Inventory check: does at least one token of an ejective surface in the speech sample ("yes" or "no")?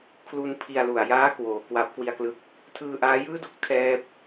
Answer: no